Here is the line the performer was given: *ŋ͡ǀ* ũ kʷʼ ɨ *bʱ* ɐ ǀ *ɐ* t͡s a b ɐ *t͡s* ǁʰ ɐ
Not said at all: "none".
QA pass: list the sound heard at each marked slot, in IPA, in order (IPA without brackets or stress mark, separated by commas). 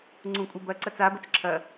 ŋ͡ǀ, b, ɐ, t͡s